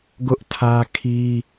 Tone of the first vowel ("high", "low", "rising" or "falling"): high